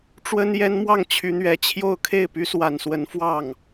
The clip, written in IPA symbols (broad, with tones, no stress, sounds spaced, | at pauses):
ʈ͡ʂ w ə˥ n j ɛ˥ n m w ɑ˥˩ ŋ t͡ɕʰ y˧˥ n̪ ɥ ɛ˧˥ t͡ɕʰ j o˥˧ ʊ̯ kʰ e˥˩ ɪ̯ p y˥ s w a˨˩ n s w ə˧˥ n f w ɑ˥˩ ŋ